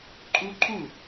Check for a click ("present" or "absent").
present